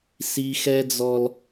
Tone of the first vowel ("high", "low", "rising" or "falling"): high